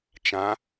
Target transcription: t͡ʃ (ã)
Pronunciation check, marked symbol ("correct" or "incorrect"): correct